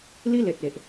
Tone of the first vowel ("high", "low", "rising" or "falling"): high